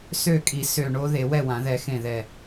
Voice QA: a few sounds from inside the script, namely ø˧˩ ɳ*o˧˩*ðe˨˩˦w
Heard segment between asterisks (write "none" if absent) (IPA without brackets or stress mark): o˦˥